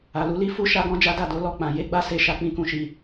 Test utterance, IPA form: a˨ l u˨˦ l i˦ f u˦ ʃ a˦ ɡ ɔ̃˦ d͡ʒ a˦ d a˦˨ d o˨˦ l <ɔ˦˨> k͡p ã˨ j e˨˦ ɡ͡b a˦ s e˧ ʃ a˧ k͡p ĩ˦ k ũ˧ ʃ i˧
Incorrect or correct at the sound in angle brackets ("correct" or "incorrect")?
correct